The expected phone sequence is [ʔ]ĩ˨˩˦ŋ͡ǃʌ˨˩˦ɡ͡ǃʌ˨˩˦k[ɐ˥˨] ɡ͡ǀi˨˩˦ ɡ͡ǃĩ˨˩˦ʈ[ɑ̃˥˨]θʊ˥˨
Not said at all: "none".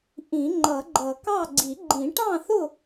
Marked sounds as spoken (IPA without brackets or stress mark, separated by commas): ʔ, ɑ˥˨, ɑ̃˥˨